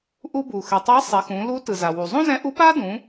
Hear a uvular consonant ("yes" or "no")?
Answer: no